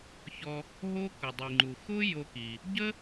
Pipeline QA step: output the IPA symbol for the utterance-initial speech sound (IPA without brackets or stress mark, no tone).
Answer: ç